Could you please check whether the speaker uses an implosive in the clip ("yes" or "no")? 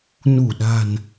yes